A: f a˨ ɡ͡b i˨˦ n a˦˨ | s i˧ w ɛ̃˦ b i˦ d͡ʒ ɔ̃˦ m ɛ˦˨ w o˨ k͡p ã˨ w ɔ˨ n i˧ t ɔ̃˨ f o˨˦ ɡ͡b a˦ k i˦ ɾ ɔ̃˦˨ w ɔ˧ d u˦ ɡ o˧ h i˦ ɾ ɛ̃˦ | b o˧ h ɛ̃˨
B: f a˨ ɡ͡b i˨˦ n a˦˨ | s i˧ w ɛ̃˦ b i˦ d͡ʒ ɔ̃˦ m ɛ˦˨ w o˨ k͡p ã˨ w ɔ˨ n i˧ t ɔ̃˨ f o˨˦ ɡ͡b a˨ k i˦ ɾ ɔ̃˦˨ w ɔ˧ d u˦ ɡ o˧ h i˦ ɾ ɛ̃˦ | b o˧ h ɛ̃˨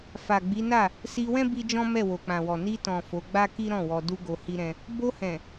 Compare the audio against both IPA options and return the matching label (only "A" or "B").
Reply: A